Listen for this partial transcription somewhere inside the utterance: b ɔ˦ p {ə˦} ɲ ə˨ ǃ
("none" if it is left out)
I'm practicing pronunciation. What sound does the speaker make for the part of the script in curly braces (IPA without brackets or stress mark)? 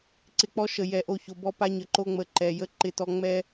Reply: a˦